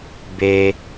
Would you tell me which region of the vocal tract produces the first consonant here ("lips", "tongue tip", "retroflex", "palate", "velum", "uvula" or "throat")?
lips